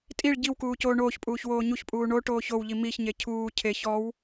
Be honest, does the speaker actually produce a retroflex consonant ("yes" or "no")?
yes